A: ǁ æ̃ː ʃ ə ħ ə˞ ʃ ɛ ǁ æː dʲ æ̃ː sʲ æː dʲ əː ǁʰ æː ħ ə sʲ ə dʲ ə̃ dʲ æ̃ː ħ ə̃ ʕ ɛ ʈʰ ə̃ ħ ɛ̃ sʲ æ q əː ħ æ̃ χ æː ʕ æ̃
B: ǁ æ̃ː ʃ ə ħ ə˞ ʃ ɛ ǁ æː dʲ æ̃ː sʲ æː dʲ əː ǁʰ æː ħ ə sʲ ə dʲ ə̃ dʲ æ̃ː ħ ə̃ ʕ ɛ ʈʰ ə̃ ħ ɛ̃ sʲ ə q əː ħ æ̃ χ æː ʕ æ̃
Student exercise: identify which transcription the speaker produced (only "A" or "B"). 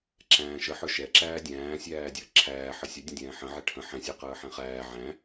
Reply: A